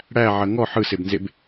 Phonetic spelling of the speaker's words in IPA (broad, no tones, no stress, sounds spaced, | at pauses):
ɽ æ ʕ ɐ ŋ ɔ ħ ɯ s e b n z e b